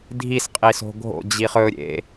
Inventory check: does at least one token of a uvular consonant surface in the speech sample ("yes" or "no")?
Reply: yes